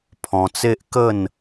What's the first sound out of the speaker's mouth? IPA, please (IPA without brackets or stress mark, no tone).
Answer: pʰ